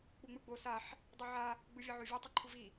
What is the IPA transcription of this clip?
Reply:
k͡p u ŋ͡m ɯ ɡ͡b o s a ħ | dˤ i ʕ a | ɡ͡b ɯ vʲ ɤ ʕ o vʲ o tˤ ɯ ǃʰ u v i

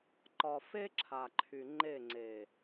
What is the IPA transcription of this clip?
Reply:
ǃ ɒ˨ f e˦ ǁʰ a˨ ǃʰ y˨ ŋ͡ǃ e˦˨ ŋ͡ǀ e˨

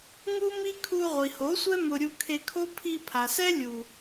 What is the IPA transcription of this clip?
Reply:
ŋ u˦ m i˦ kʰ u˧ ʁʷ i˨ h o˨˦ sʷ ɛ˦ m ʊ˧ ɾʲ u˧ kʰ e˧ kʰ o˦ pʰ i˧ pʰ a˨ s ɛ˦ lʲ u˨

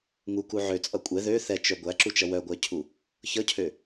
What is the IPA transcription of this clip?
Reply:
ŋ u k u ʕ ø t͡sʼ ʌ kʷʼ ɛ ð ø θ ɛ t͡ʃ œ ɡʷ æ ǁ u t͡ʃ ʌ w œ ɡʷ æ cʰ u | ç ʌ cʰ ø

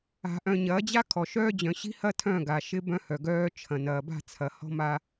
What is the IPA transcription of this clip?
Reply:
a̤˨ ʔ œ̃˨ ɲ ɐː˨˦ d͡ʑ a˦ kʰ ɔ˨ ʃ œː˦ d͡ʑ œ̃˨ ɕ i̤˦ h ɐ˦ tʰ œ̃˦˨ ɡ a˨ ʃ ɪ˦ b œ̃˦ h œ˨ ɡ œː˦ t͡ʃʰ ɐ̃˨ n ɐː˨ b a̤˦˨ t͡sʰ ɐ˨ h ɔ̤˦ m a˦

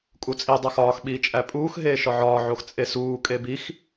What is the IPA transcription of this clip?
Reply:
kʼ u t͡sʼ i dˤ æ x ɒː x ɓ iː t͡ʃʼ æ pʼ uː x ɦ eː ʃ ɒ ʕ ɒː ʕ o x t͡sʼ e s uː kʼ e b i x

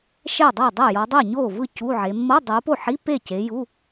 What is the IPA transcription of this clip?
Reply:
ʃ ɛ˥˩ dˤ ɛ˥˩ dˤ ɛ˥˩ j ɔ˨˦ dˤ e˥˩ ɲ oː˥˩ v ɯ˥˩ c u˧˥˧ ʕ e˨˦ mː ɤ˧˥˧ dˤ u˨˦ p o˥˩ ħ i˧˥˧ p e˥˩ c e˨˦ j u˧˥˧

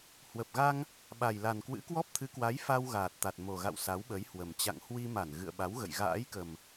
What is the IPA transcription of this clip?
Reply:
h w ə˨˩ p̚ ɣ a˧ ŋ | ɓ a˨˩ j l a˨˩ n k w ɨ̰˧˥ k w ɔ˦˥ p̚ t̪ʰ ɨ˨˦ k w a˨˦ j f a˧ w ɣ aː˨˩ t̚ t̪ a˨˩ t̚ m o˨˩ ɣ a̰˧˨ w s a˨˦ w ɓ ə˨˦ j h w ə˨˩ m t͡ɕ a̰˧˨ ŋ h w i˧ m a˧˩ n ɣ ɨ̰˧˨ ə̯ ɓ a˨˦ w ɣ ə̰˧˨ j ɣ a̰ː˧˥ j k ə˨˩ m

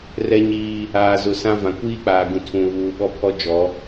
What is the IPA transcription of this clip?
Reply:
r ɛ˦ ɲ iː˦ | aː˨ z ʊ˨ s ã˦ v ã˨ kʷ iː˦ k͡p aː˨ ɡ ũ˨ tʰ ũ˨ β uː˨ ɓ ɔ˦ pʰ ɔ˦ d͡ʒ ɔ˨˦

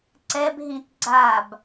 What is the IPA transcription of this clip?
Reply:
ǀ ɛ b ɦ ĩ t ɡ͡ǀ a b

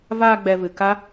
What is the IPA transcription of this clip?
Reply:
v aː˧ ɡ͡b ɛ˨ v ɨ˨ k a˦

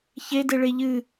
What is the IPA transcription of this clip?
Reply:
ç e d e ɭ e ʎ ɨ

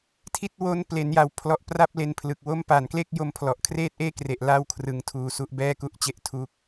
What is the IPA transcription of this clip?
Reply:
tʰ i˦˥ t̚ w o˦˥ n p l e˩˦ n j a˨˩ w pʰ l ɔ˨˩ ʔ p r a˥˩ p̚ l e˧ n pʰ l ɯ˨˩ k̚ w o˦˥ m p a˨˩ n k l e˥˩ k̚ j o˧ m pʰ l ɔ˨˩ ʔ kʰ r eː˥˩ t̚ ʔ eː˥˩ k r e˨˩ ʔ l a˥˩ w kʰ r ɯ˧ ŋ tʰ uː˧ s u˦˥ ʔ b ɛː˥˩ k u˥˩ ʔ t͡ɕ e˥˩ ʔ tʰ u˦˥ k̚

